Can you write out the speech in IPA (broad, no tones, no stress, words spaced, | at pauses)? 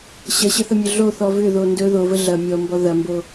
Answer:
ɕɐɕəθəmʲɵ ɮoθɔ vʏðo ndɵ ðovə ɮɐ mʲɔmbɔ ðɐmbo